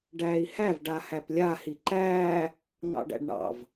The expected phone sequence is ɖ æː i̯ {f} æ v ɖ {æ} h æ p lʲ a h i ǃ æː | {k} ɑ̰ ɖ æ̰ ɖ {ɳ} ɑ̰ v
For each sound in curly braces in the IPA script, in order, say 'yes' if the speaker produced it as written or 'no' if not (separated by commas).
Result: no, no, no, yes